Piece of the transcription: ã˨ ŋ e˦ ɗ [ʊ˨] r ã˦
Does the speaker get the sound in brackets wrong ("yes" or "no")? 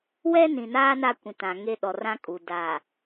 yes